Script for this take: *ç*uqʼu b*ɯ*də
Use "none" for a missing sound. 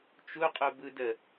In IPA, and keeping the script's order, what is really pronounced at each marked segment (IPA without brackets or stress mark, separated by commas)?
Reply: t͡ʃ, ɯ